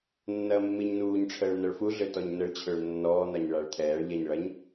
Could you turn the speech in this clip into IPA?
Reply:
nːɐːmːiɲnuːɲʈ͡ʂʰəːɭ n̪ɐɭfuɮø tɔɲnəɭt͡ɕʰøɭ nːɔːn̪aɲ ɭaɭt̪ʰɛːɭʎɛɲ ɭɐɲ

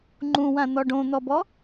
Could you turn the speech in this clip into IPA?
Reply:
ŋ͡ǃũwãn̪ɔ ɖõn̪ɔbɔ

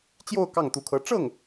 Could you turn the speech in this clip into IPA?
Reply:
t͡ɕjo˥˧ʊ̯ kɑ˥˩ŋt̪u˧˥kʰɤ˧˥ ʈ͡ʂɤ˥˩ŋ

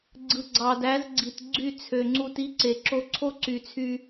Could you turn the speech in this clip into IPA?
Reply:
ɡ͡ǀɯ˨ɡ͡ǀɑ˨dæ˨˦z ɡ͡ǀi˨tɡ͡ǀy˦˨t͡sʰø˨ŋ͡ǀu˧t i˦ǀe˨ ǁo˧ǀʰo˦ǀy˨t͡sʰy˧

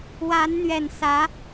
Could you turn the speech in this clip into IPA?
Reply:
wa˧˥nn̪ɥɛ˨˩nsä˧˥

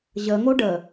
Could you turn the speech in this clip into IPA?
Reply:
ʑəŋo ɖə

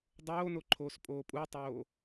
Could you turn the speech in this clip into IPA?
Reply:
dˤoːno ǃʰoːspʼoːpʼutˤoː

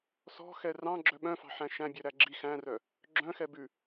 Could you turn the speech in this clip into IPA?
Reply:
sɔ̤xɛ rɑ̃ɡ͡ǁœ ɓœ̃fɑ̤ħæ̃ ʃæ̃bʲœɾæ ɡ͡ǁi xæ̃rœ | ɡ͡ǁœ̃xɛ bʉ

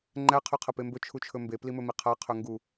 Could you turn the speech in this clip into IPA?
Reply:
ŋ͡ǃæ qʰɵqʰɐpembɵ t͡ʃʰut͡ʃʰɵmbe plimɵmiqʰa qʰɵŋɡu

